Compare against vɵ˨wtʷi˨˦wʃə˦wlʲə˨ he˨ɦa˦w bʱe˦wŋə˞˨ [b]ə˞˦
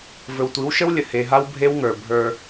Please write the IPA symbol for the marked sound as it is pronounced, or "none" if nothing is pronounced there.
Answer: bʱ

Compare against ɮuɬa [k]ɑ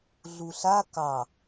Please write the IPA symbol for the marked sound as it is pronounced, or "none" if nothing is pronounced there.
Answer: k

